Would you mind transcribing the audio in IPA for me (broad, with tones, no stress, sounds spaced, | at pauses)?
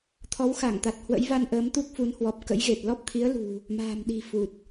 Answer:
t̪ʰ ɔ˨˦ w x a˧˩ ŋ t̪ a˨˩ t̚ h w ə̰˧˥ j v a˧ n ʔ əː˨˦ m t̪ u˦˥ k̚ f u˨˦ n h w ɔ˨˩ p̚ k ə̰˧˥ j ɣ e˨˩ t̚ l ɔ˦˥ p̚ t̪ʰ i˨˦ ə̯ l ṳ˨˩ | m a̤ː˨˩ m ɗ i̤˨˩ f u˨˩ t̚